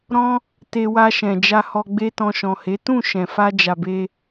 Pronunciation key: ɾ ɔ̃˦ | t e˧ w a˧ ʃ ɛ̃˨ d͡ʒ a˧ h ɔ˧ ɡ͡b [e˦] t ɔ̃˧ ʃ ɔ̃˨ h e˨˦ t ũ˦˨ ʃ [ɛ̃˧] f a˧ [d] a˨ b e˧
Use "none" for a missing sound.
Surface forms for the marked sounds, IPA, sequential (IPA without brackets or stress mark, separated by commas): e˦, ɛ̃˨, d͡ʒ